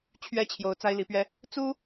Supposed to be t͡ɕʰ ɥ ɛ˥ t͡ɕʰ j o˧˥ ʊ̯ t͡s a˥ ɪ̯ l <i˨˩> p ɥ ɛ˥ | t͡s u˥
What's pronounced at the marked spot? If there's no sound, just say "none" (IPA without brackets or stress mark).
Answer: i˧˥